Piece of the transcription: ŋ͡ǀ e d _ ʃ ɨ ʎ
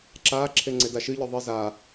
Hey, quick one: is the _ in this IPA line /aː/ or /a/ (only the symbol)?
a